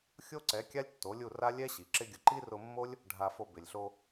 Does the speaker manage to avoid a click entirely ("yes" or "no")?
no